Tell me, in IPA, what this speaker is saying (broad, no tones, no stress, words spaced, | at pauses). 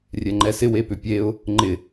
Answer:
rʲɛŋ͡ǃɛsɪ wepʏpʲeʊ̯ | ŋ͡ǃɪ